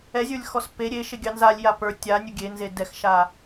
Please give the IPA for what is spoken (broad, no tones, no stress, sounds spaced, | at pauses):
ɛ zʲ ə˞ lʲ x ɔ s p e ɾʲ e ʃ e ɡʲ ɑ n z a lʲ j a p ə˞ tʲ a nʲ u ɡʲ e n z e d ɛ x ʃ a